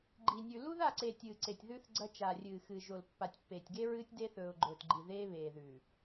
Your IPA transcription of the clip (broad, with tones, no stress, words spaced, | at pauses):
ɡ͡ǃi˨nʲʉ˨ lu˦ða˦˨ǀe˨ tʲɨː˨ǀe˨tʲðʉ˦θ ɡ͡ǀɐ˦ t͡ʃa˨rʲɨː˨xɨː˨ ʒo˨lpːa˨tʲ pːeː˨tʲɡe˦ɹɨː˦tʲ deː˦θɵː˨ʊ̯ɡ͡ǃɵː˨tɡ͡ǃi˨ ðeː˦βeː˨ðʉ˨